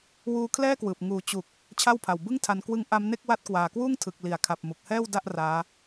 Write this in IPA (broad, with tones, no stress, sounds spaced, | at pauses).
w uː˧ kʰ l ɛː˥˩ k w ɯː˨˩ p̚ ŋ uː˨˩ t͡ɕ u˨˩ k̚ | t͡ɕʰ a˥˩ w pʰ a˨˩ w b ɯ˥˩ ŋ tʰ a˧ n k w ɯ˦˥ ŋ ʔ a˦˥ m n e˥˩ k̚ w a˦˥ t̚ k w aː˨˩ k w uː˥˩ ŋ tʰ ɯ˨˩ k̚ l i˩˦ a̯ kʰ a˨˩ p̚ m u˨˩ k̚ h ɛː˥˩ w d a˥˩ ʔ r aː˦˥